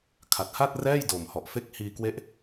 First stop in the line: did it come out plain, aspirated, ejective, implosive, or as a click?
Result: aspirated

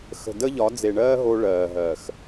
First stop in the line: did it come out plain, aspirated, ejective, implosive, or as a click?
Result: plain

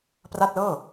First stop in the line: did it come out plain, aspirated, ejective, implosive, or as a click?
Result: plain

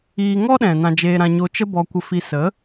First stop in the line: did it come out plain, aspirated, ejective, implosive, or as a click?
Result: implosive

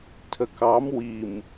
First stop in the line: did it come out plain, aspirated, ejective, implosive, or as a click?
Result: aspirated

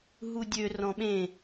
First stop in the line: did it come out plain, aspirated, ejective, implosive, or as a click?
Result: plain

